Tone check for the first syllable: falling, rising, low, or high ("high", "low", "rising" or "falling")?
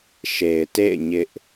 low